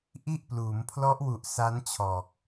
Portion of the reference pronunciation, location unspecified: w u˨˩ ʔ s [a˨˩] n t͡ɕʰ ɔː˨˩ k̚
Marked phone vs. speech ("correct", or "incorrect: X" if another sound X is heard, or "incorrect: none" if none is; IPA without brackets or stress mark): incorrect: a˦˥